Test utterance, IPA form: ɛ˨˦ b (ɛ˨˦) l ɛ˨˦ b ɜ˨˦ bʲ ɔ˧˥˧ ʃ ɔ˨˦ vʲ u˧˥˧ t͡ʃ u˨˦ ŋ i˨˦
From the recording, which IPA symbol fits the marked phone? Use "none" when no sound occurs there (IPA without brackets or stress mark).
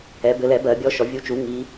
ɘ˨˦